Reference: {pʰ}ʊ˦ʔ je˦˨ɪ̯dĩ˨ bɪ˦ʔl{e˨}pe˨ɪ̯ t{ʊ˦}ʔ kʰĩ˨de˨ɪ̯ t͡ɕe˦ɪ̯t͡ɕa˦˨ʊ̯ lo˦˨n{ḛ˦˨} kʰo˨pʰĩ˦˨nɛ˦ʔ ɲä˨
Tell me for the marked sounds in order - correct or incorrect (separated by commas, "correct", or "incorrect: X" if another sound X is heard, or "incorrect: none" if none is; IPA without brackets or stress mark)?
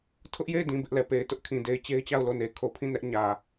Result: incorrect: tʰ, incorrect: ɛ˨, correct, incorrect: e˨